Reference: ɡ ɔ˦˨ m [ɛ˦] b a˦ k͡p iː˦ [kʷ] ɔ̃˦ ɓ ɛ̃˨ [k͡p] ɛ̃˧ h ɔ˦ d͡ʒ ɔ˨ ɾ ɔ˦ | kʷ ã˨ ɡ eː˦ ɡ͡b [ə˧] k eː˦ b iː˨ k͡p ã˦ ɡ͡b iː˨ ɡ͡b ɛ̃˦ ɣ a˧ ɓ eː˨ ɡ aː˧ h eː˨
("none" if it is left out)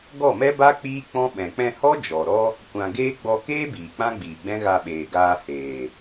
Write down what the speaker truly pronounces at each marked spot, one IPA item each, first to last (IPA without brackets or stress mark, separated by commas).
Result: ɛ˦, k͡p, k͡p, ɔ˧